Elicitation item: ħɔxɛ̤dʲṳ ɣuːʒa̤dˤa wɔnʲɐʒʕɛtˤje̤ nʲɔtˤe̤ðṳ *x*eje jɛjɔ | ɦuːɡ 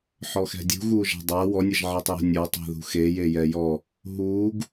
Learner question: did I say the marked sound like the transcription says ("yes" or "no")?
yes